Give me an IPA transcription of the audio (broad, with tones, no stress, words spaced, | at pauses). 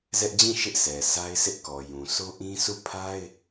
zɛ˦ʔd͡ʑĩ˦˨ ʃɪ˦ʔsʰɛ˨sa˦ɪ̯ sɪ˦ʔkɔ˨jũ˨ so˦ʔĩ˦ sʰu˦˨ pʰa˦ɪ̯